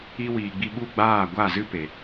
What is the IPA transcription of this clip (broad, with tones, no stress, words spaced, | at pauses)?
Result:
i˧wiː˨ɡ͡bi˧ɓu˦˨ ɡ͡baː˦˨ɡʷa˦˨zɨ˦ pe˨